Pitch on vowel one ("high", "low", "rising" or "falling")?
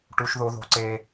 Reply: high